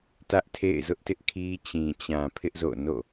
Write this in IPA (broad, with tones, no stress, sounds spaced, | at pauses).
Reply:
t ä˦ ʔ tʰ ḛ˦˨ ɪ̯ z ʊ˦ ʔ t ɪ˦ ʔ kʰ i˦ t͡ɕ ĩ˨ t͡ɕ ã˨ pʰ ɪ˦ ʔ z o̰˦˨ n o̰˦˨